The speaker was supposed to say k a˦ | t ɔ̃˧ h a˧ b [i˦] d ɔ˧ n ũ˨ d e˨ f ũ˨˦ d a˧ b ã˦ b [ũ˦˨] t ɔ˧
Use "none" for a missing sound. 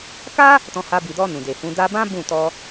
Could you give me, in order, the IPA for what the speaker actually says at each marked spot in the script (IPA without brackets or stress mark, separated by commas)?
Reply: i˨, ũ˦˨